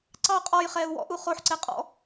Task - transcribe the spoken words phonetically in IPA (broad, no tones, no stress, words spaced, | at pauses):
ǀɑ qʼɔj χɛːu̯wɔ̰ ʔuχoħǀɛ qʼɔ̰